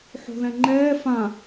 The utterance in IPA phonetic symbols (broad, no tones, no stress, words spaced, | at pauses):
ħo̤ðɛ̃ŋ͡ǃɛː fã